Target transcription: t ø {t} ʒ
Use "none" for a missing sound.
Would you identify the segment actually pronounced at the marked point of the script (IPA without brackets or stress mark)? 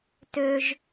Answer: none